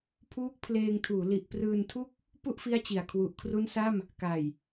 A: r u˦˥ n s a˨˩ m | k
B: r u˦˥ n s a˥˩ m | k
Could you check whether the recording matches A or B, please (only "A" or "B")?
B